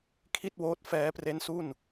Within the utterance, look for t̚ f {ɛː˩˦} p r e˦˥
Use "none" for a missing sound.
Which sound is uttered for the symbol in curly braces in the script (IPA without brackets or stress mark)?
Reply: ɛː˦˥